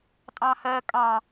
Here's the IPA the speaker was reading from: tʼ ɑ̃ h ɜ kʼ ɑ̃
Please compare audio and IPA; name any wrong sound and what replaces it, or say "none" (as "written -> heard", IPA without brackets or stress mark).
none